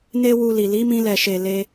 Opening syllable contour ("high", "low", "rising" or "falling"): high